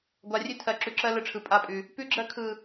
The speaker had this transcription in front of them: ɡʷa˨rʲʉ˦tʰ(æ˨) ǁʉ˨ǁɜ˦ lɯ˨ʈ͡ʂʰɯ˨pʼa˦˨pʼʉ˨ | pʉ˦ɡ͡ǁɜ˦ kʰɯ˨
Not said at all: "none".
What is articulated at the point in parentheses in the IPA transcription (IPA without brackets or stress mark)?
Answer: ɜ˨